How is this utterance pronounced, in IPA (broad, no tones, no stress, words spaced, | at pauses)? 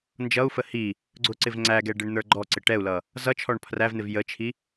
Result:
nd͡ʒʌu̯fə hi | ɡ͡ǀʊǀɪv ŋ͡ǀæɡɛ ɖɪɳn̪ə˞ɡ͡ǃɔǀɪ ʈɛu̯lʌ | zʌt͡ʃʰɔɳ pʰrævn̪ɪv jət͡ʃʰi